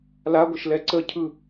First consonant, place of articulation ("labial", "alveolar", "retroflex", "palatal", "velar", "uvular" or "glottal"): alveolar